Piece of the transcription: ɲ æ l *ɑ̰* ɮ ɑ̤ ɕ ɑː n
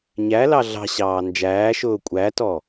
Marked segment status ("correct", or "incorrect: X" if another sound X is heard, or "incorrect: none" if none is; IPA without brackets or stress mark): incorrect: ɑ